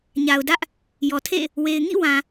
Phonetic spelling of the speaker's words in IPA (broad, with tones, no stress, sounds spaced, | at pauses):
ɲ a˨ ʊ̯ d ä˦ ʔ | j ɔ˨ tʰ ḛ˦˨ | w e˨ ɪ̯ ŋ ḭ˦˨ w ã˨